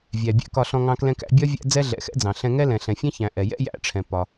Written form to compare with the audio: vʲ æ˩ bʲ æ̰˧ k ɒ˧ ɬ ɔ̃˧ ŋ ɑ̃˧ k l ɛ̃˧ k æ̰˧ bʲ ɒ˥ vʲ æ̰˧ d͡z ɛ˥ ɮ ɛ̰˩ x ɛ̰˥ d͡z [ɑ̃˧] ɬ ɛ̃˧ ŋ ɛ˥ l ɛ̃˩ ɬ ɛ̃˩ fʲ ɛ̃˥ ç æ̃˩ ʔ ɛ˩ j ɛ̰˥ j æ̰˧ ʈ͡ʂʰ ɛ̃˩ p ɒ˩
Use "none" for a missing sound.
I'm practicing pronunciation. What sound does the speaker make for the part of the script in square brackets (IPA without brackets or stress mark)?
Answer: ɑ̃˩